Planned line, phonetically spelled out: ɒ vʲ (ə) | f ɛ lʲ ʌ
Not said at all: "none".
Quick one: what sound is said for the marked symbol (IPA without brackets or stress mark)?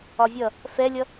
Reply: ʌ